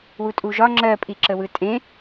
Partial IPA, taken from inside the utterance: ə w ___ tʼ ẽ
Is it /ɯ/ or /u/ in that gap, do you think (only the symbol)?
ɯ